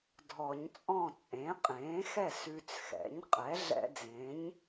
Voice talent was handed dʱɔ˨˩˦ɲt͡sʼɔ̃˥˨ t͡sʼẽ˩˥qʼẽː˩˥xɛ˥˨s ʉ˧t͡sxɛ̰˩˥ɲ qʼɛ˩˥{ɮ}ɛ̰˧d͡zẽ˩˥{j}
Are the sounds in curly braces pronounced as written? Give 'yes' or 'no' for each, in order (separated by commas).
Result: yes, no